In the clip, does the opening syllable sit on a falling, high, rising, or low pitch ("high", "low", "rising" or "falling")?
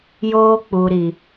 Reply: high